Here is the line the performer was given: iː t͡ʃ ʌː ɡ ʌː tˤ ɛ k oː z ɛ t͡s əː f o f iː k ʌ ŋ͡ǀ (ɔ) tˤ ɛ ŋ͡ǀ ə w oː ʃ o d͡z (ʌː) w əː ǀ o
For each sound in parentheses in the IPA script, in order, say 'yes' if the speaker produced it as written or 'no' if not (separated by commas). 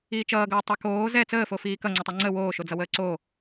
no, no